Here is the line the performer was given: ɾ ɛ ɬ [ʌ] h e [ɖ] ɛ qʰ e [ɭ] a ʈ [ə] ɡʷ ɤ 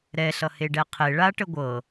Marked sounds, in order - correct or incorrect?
correct, correct, correct, correct

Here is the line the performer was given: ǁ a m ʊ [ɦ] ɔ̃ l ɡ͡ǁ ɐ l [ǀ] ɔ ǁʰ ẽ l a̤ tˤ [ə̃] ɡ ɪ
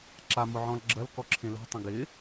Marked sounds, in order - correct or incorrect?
incorrect: ʕ, incorrect: k, correct

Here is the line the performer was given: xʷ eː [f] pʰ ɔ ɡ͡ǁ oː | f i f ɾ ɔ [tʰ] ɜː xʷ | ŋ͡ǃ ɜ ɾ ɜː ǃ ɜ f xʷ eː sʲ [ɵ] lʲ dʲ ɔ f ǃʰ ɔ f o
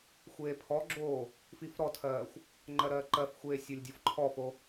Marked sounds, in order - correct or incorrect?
incorrect: none, correct, incorrect: o

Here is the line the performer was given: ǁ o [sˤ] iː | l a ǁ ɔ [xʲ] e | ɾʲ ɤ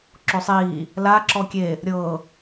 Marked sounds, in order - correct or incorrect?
correct, incorrect: kʲ

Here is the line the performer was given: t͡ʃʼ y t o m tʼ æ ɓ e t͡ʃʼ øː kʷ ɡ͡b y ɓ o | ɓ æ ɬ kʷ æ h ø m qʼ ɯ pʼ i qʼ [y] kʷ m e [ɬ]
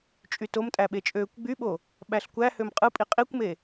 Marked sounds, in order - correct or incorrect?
incorrect: i, incorrect: none

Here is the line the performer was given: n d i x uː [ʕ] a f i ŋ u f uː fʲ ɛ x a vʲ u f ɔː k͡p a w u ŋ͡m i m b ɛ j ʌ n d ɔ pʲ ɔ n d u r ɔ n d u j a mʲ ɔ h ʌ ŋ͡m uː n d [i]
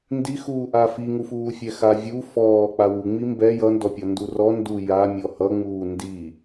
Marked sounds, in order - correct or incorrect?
incorrect: ʔ, correct

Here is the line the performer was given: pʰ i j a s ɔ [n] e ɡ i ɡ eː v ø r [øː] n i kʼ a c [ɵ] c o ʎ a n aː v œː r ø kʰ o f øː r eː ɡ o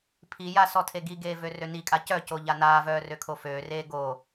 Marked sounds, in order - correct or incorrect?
incorrect: tʰ, incorrect: ø, incorrect: œ

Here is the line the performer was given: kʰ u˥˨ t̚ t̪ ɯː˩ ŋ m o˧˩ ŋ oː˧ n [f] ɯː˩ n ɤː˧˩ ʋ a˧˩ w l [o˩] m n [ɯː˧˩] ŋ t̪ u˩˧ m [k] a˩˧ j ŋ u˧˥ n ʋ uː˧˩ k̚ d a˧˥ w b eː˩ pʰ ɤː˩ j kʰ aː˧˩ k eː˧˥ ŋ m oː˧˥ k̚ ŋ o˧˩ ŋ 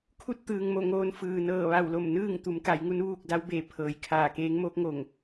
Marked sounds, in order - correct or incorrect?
correct, incorrect: o˧˩, incorrect: ɯː˥˨, correct

